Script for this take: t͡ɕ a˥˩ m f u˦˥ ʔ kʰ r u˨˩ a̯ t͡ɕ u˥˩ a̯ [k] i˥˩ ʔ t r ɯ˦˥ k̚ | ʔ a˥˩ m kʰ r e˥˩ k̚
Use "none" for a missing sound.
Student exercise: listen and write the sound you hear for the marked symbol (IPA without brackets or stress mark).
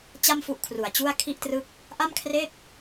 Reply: kʰ